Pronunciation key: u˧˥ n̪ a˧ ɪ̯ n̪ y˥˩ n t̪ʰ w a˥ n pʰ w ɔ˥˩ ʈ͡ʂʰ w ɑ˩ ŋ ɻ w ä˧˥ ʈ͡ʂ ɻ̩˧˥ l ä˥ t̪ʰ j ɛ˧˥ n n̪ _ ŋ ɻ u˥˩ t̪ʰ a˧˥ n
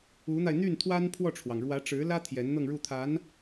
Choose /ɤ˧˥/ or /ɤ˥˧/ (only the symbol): ɤ˥˧